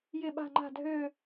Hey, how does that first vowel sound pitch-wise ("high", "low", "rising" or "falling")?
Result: falling